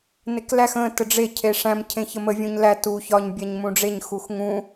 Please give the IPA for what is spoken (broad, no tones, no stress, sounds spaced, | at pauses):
n e k l æ x ə̃ t ə ɖ͡ʐ e cʰ e ʂ æ̃ m cʰ ẽ ç ə m ə vʲ ũ ɲ l æ t u ç ɒ ɲ bʲ æ ɲ m ũ ɖ͡ʐ e ɲ x u x ŋ ũ